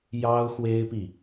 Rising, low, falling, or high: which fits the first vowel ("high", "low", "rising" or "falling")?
high